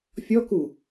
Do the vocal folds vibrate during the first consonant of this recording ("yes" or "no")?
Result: no